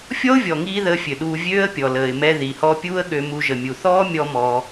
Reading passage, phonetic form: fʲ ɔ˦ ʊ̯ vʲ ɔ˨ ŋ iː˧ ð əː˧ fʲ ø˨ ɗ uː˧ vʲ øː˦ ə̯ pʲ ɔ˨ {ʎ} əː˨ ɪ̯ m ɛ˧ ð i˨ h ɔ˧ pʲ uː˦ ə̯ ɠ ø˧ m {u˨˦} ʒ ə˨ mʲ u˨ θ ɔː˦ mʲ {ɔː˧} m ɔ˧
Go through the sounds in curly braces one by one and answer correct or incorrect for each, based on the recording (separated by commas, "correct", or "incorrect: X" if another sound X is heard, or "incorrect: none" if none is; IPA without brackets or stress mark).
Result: incorrect: l, incorrect: u˧, incorrect: ɔ˧